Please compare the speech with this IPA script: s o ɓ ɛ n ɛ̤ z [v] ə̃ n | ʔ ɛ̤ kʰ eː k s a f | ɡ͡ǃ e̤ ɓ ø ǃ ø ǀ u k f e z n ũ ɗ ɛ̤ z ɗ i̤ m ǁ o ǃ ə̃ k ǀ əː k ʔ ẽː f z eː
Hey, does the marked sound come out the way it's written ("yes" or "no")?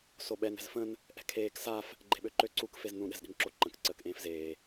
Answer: no